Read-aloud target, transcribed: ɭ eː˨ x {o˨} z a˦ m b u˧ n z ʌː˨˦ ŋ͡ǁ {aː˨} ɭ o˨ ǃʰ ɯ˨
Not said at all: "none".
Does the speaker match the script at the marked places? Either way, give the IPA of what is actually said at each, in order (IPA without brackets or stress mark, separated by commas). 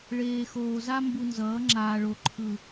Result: oː˨, aː˨